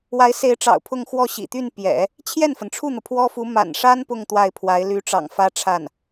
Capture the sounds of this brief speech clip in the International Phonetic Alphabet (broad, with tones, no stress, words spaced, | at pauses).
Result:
wa˧˥ɪ̯se˧˥ɪ̯ʈ͡ʂɑ̰˨˩ʊ̯ pʰʊ˥˧ŋxwɔ˥˩ɕḭ˨˩ t̪y˥˩n pjɛ̰˨˩˦ | t͡ɕʰjɛ˥˩nfə˩nʈ͡ʂʰu˥˩n̪ɤ˩ pʰwɔ˥fu˧˥ ma̰˨˩nʂa˥n pʊ˥˧ŋ t̪wa˥˩ɪ̯pʰwa˧˥ɪ̯ ly˧˥ʈ͡ʂɑ̰˨˩ŋ fä˥ʈ͡ʂʰa˥˩n